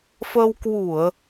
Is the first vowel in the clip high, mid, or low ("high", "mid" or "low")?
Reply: mid